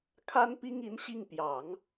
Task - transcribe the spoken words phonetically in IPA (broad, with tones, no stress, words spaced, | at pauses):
kʰa˥npi˥ŋi˧˥nɕi˥˩ŋ pjɑ˨˩˦ŋ